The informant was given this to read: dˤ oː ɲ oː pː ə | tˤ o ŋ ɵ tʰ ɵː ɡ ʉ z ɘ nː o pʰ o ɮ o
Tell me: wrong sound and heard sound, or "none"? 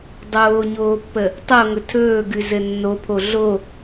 none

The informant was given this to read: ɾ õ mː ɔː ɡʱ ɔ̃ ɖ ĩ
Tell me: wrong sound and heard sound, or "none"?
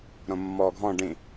none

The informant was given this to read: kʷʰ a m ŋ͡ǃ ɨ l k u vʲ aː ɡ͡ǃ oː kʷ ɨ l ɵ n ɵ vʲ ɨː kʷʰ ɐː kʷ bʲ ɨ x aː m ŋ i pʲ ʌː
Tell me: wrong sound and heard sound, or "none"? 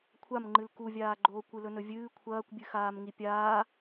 ʌː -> aː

